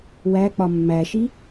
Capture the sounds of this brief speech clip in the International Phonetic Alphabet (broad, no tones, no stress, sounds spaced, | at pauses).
w æ k͡p ɒ mː æ ʃ i